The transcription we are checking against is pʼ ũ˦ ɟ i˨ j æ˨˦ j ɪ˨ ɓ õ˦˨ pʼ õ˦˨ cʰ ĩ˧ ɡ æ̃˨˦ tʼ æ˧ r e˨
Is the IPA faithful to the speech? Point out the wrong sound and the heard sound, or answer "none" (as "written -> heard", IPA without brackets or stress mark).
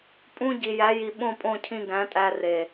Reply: ɪ˨ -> i˨